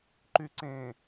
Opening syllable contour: low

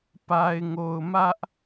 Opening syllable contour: low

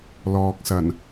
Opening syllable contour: low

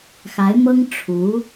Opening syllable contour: rising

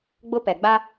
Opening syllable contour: high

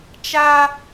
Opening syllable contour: high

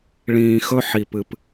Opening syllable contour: low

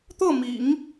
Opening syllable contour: falling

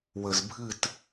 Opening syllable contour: low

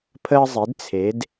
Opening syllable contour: high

